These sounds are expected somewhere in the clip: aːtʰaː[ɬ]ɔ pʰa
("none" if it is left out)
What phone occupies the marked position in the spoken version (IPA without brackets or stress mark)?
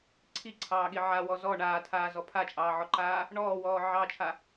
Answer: z